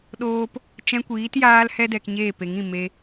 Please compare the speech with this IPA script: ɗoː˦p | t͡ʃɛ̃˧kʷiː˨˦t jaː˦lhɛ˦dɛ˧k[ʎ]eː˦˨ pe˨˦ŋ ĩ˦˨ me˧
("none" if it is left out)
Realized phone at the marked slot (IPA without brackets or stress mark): ɲ